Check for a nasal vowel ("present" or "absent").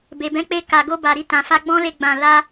present